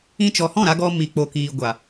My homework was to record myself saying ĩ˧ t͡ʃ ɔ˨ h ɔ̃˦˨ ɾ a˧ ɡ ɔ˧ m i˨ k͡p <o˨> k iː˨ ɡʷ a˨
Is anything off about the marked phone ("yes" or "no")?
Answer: no